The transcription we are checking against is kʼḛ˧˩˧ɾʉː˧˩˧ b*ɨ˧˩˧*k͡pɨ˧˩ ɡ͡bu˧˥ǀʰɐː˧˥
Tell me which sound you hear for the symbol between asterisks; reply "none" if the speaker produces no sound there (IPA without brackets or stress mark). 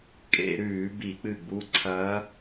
i˧˩˧